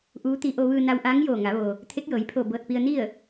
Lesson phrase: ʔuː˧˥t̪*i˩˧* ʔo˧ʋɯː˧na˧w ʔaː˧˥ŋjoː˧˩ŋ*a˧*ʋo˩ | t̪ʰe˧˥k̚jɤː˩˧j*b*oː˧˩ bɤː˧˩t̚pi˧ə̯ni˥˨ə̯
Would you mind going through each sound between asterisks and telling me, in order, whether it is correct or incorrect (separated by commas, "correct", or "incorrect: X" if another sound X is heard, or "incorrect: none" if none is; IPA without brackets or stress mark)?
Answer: incorrect: i˧, incorrect: a˩˧, incorrect: pʰ